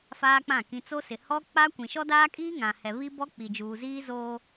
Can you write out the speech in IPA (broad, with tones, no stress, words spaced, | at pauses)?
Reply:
faː˦k͡pã˦˨ kĩ˨t͡so˦sɪ˨ hɔ˦ k͡pa˦kʷĩ˨ ʃɔ˦daː˦kʼiː˦ ŋã˨hɛ˨ βi˦bɔ˦k͡pi˨d͡ʒuː˨ ziː˦zoː˦